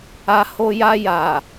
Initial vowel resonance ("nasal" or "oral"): oral